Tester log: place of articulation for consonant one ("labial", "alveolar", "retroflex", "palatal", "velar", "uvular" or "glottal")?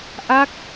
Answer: glottal